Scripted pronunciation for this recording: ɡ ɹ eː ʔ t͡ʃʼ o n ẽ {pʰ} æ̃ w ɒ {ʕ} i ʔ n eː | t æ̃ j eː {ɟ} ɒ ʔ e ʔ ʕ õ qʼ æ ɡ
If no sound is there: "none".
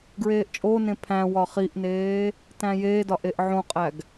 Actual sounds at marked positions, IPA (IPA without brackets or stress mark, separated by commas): pʰ, χ, d